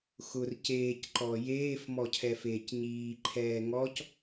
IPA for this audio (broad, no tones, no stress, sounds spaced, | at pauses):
x ʊ r c eː c ǃ ɔ j eː f m ɔ cʰ ɛ f eː c ɲ iː ǃʰ ɛː ŋ ɔ c